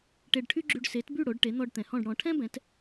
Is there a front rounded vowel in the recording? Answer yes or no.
yes